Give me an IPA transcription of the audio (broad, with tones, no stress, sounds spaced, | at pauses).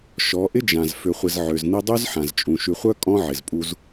ʃ ɔ˨˦ ʔ ɪ˦ d͡ʒ ã˨ z f ʏ˨ χʷ ɪ˨ z ʕ ø˨ z n i˦ dˤ y˦ z ħ ã˨ z t͡ʃʼ ũ˨ ʃ y˨ χʷ œ˦ kʼ ɔ̃˦ ʕ ɪ˨ z pʼ u˦ z